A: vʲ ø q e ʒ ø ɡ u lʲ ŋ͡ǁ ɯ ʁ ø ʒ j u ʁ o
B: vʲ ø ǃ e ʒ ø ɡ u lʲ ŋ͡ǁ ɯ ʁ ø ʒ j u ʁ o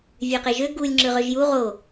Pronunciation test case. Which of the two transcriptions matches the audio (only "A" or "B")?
A